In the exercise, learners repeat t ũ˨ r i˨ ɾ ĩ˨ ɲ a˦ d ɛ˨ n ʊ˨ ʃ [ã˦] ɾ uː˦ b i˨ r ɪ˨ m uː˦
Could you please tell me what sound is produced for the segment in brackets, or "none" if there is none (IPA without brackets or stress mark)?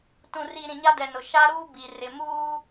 a˦